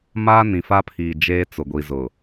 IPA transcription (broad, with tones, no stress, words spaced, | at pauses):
maː˦nĩ˨fa˦pʰiː˨ d͡ʒeː˦t͡sʊ˨ ɡʷi˨zʊ˨